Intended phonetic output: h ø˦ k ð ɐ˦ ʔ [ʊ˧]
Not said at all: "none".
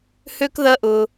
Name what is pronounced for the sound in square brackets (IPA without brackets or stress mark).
ʊ˧